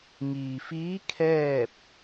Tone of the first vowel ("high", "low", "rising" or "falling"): low